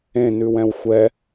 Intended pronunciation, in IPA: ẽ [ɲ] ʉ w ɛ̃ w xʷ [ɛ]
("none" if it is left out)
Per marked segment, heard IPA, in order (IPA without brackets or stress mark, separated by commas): n, ɛ